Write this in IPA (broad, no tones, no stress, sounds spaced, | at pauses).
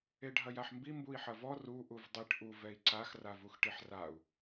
e ɖʱ ɐ j a ħ m b i m b u i̯ ħ ɐ v ɔ r u ʔ u v dˤ i ʈ ʔ u v ɛ i̯ ǀ a x r a v u x ʈ i ħ r a u̯